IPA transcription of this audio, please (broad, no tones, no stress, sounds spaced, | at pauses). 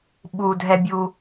ɓ u dʱ ɛ bʲ u